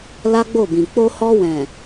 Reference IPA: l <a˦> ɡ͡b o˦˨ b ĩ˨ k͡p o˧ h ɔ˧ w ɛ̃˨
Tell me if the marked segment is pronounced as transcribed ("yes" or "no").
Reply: yes